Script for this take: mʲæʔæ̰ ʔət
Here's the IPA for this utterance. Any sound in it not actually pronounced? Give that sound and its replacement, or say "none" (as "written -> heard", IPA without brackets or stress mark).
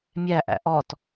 ə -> ɔ